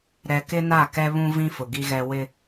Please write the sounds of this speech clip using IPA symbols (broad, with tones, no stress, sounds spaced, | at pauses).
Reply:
ɾ ɛ˨ k ɪ˦ n a˦˨ k ɛ˦ β ũ˦ v ĩ˦ f ʊ˨ ɡ i˦ ɣ ɛ˦ w ɪ˦